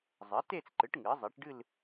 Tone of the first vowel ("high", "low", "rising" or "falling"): rising